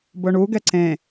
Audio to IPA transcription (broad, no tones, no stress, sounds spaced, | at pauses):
b ʊ ɳ u ɡ ɛ ǀ ẽ